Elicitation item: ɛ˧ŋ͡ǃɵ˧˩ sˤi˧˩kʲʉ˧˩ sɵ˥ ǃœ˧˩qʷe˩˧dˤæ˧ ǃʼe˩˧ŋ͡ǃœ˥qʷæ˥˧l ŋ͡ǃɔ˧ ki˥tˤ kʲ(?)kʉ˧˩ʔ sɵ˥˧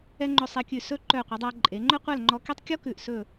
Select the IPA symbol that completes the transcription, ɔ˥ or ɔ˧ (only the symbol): ɔ˥